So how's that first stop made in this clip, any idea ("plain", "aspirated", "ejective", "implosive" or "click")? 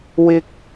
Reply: plain